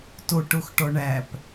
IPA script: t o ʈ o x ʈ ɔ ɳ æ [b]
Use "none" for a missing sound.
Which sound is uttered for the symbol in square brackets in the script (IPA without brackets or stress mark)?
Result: p